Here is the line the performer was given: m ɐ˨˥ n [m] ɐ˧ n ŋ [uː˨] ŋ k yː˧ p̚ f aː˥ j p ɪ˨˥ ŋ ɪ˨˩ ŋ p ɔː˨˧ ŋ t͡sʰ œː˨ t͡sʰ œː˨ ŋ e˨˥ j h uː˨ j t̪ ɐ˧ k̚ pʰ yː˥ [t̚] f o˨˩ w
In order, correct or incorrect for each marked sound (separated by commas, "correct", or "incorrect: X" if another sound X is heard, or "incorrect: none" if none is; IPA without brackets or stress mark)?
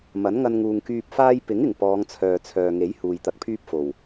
incorrect: ŋ, correct, incorrect: p̚